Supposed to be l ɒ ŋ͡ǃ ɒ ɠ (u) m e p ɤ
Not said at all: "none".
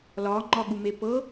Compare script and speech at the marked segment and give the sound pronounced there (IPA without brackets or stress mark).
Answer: u